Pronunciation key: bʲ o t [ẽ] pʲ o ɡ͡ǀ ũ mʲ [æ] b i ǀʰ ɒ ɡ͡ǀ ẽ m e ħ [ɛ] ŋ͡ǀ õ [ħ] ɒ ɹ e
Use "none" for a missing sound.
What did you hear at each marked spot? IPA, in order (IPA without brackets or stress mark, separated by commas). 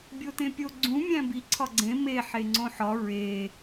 ẽ, æ̃, e, ħ